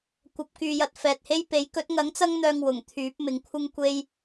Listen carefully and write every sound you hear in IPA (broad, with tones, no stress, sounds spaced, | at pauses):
kʷ ɐ˨ p̚ k yː˨ j ɐ˨ t̚ f ɛː˨ t̚ h e˥ j p e˨˥ j k ɵ˨˥ t̚ ŋ ɐ˨˥ ŋ t͡s ɐ˥ ŋ n̪ œː˧ ŋ w ʊ˨˩ ŋ t̪ʰ yː˨˥ p̚ m ɪ˨ ŋ kʷʰ ɪ˥ ŋ kʷ e˥ j